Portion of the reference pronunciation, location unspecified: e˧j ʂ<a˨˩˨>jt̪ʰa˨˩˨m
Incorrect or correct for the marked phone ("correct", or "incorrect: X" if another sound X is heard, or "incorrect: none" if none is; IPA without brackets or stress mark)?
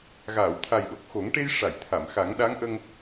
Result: correct